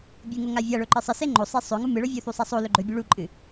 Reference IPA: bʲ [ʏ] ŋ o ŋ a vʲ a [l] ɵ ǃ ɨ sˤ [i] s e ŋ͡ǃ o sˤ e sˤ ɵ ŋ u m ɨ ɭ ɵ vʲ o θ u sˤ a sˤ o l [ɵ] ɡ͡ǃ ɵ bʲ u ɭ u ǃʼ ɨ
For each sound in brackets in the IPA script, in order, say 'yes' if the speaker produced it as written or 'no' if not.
no, no, no, yes

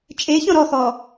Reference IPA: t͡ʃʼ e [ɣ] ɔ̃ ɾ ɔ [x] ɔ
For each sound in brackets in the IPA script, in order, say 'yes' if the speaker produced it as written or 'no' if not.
no, yes

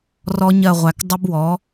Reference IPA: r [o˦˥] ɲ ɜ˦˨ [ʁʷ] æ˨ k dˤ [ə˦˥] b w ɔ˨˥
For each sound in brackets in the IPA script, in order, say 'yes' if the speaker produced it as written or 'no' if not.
no, yes, yes

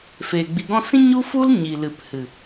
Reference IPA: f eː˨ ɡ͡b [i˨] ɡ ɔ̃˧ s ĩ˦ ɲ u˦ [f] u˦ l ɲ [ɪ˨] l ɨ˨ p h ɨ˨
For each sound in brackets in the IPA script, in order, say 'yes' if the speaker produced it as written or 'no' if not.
yes, yes, no

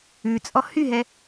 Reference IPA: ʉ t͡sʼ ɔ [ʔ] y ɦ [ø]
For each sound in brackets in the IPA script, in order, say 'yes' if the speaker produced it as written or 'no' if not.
no, no

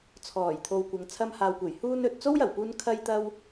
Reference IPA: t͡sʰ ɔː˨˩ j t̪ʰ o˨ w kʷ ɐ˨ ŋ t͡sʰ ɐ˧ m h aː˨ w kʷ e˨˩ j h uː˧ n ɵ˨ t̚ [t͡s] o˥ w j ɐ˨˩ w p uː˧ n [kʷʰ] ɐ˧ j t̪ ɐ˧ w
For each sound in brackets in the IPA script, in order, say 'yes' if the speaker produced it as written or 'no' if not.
yes, no

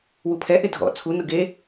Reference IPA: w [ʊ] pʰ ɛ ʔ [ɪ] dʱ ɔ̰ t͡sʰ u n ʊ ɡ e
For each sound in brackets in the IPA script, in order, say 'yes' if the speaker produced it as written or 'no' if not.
no, yes

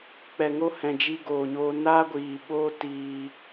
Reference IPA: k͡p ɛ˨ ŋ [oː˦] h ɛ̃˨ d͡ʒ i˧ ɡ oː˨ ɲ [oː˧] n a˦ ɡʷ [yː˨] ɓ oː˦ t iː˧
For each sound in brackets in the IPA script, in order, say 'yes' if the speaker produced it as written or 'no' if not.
no, yes, no

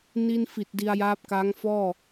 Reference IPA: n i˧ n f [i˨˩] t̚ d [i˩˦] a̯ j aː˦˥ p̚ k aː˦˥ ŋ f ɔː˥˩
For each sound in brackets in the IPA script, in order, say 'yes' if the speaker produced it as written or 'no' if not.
yes, no

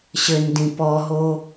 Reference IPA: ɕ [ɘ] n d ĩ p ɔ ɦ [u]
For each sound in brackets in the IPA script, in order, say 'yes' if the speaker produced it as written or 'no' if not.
yes, no

